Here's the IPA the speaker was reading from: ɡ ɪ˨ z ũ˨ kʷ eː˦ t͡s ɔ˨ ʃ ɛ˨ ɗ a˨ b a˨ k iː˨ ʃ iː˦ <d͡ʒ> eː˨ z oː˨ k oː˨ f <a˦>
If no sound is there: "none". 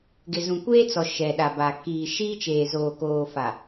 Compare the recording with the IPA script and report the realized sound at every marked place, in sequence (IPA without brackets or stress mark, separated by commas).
t͡ʃ, a˨